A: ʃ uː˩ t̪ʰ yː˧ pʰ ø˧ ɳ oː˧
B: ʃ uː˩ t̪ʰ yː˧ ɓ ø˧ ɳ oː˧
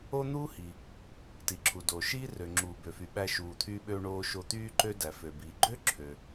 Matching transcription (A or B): B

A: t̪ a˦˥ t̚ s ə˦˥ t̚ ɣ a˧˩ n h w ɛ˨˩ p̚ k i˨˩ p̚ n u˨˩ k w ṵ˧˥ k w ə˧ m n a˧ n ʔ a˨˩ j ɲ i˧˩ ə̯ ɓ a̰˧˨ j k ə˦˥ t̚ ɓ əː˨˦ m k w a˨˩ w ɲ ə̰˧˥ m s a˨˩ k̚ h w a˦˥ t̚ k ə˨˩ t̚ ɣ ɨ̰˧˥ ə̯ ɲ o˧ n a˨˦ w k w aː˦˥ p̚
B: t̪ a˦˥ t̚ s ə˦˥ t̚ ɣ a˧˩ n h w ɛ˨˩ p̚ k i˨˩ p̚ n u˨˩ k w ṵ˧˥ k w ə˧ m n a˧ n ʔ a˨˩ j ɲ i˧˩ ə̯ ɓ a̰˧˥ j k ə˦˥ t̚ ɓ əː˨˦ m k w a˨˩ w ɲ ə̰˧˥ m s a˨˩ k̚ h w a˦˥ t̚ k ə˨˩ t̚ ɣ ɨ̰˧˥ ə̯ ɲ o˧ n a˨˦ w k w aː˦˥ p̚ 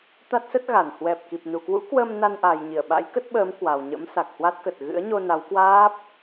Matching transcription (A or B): B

